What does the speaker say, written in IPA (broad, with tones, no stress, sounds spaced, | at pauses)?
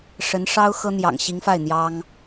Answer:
ʂ ə˧˥ n ʂ ɑ˥ ʊ̯ x ɤ˥ n̪ j ɑ̰˨˩ ŋ ɕ i˧˥ ŋ f a˥˩ ɪ̯ n̪ j ɑ˥ ŋ